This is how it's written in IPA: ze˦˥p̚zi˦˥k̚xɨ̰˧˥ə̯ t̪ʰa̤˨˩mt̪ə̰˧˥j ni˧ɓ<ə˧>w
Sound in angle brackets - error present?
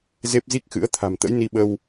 no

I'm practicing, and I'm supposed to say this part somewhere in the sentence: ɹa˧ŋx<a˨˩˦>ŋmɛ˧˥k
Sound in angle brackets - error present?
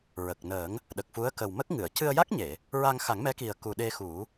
no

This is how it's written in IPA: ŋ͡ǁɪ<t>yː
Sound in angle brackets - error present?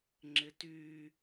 no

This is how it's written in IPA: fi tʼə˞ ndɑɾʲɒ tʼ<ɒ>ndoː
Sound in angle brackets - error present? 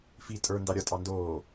yes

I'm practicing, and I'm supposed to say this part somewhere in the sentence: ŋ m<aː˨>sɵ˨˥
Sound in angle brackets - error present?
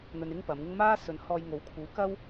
yes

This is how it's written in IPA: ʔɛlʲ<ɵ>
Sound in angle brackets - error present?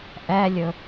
no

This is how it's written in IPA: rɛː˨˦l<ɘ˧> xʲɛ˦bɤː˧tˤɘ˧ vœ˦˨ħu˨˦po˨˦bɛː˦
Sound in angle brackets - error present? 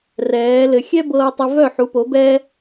no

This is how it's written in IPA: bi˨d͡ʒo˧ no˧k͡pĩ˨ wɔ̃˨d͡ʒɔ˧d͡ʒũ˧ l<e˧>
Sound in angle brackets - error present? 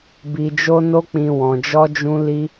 yes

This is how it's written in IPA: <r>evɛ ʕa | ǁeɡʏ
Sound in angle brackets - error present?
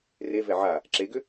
no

